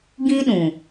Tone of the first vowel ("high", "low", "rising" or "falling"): high